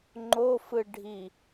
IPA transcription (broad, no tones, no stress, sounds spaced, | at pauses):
ŋ͡ǃ o f ɯ ɖʱ i